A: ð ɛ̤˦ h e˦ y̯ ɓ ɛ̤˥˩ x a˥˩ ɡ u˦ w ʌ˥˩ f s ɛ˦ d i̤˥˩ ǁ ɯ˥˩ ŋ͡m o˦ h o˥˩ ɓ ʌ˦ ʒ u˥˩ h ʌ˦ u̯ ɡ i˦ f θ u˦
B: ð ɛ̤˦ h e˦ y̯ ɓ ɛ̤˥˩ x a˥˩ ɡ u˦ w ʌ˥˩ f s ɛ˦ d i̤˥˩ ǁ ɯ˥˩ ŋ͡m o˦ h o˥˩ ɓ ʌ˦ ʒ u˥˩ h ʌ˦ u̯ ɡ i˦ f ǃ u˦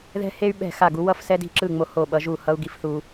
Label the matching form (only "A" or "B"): A